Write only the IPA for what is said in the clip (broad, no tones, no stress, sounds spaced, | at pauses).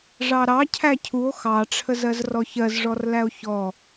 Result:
ʐ ɑ ɾ ɑ cʰ æ cʰ u o̯ x ɑ ʈ͡ʂʰ ə z ɜ z r ɔ ç ɜ z ʐ ɔ r l æ o̯ ç ɔ